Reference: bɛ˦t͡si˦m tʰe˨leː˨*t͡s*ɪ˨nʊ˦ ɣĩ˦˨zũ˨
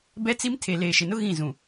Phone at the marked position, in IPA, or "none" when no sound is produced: ʃ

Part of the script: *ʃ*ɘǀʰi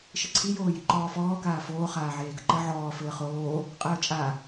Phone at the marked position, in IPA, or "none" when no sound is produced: ʃ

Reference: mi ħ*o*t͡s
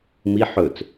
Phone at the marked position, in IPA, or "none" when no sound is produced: ɵ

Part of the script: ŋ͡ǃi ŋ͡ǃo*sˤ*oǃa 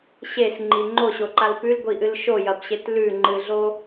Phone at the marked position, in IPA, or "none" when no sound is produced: ɕ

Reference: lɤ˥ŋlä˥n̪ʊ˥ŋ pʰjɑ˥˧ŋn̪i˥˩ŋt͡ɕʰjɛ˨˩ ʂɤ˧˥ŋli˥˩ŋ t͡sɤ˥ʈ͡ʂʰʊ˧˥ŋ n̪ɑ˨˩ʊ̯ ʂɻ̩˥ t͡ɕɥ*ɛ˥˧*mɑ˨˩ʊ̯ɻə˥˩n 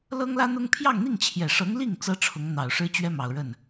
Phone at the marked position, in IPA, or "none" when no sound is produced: ɛ˥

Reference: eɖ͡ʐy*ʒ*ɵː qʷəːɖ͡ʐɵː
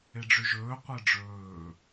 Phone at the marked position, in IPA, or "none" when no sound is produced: ʒ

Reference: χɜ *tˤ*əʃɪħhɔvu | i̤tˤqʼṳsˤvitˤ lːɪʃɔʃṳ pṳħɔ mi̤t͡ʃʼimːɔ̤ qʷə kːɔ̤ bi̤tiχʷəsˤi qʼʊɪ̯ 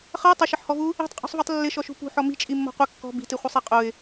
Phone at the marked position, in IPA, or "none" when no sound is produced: tˤ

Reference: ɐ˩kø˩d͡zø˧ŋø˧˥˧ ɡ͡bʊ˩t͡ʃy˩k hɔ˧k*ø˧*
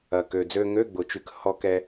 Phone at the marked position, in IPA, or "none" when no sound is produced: ɛ˧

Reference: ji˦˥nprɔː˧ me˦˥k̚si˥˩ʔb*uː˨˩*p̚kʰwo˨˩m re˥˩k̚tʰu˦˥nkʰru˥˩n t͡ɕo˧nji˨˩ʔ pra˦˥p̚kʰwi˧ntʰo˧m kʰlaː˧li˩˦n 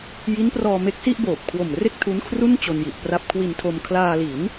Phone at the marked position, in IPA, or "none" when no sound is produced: oː˨˩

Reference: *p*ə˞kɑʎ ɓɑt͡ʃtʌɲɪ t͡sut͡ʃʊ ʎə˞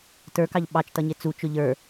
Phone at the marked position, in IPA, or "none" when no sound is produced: t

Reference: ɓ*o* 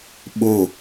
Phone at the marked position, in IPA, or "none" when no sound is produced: o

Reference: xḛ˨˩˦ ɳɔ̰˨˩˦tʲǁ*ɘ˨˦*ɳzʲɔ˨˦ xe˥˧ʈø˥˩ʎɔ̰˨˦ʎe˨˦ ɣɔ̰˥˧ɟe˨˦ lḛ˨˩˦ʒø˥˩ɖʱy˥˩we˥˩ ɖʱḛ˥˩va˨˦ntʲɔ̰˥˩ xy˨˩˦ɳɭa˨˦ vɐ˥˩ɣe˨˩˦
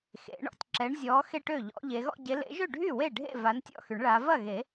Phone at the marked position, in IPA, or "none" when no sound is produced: ɛ˨˦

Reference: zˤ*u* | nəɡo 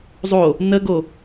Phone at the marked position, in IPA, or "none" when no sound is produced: o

